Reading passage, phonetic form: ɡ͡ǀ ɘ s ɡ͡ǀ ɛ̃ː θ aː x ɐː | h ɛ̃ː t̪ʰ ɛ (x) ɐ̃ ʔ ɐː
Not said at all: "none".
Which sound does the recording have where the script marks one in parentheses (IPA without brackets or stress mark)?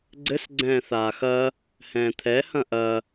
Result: h